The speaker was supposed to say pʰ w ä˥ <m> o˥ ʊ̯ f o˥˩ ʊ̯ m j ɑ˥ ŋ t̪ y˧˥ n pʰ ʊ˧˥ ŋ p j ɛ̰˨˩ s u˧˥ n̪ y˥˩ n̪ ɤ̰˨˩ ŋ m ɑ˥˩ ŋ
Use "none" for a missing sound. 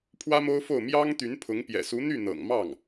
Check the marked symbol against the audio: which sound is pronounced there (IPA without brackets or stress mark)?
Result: m